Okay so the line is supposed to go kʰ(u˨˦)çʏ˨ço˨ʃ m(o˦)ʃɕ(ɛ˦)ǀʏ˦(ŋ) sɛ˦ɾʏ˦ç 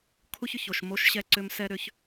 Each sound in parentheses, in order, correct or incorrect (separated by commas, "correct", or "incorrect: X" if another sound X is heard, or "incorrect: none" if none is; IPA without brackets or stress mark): incorrect: u˦, correct, correct, incorrect: m